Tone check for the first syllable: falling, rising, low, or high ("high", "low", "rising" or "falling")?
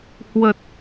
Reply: low